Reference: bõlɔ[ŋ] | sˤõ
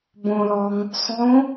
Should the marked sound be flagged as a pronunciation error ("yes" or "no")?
no